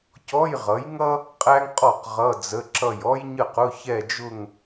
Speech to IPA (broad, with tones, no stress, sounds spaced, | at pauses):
c ɔ˧˥˧ j ʁ ʌ˩˥ j ŋ ʌ˥ | qʼ æ˥ ŋ qʼ ɔ˥˩ q ʁ ʌ˧˥˧ d͡z ə˧˥˧ ǁ ʌ˥˩ j ɔ˥ j ɲ ə˥˩ q ʊ˧˥˧ ç ɛ˥˧ d͡ʒ ʊ˥˧ ŋ